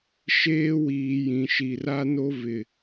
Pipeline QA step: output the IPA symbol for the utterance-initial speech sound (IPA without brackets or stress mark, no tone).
ʃ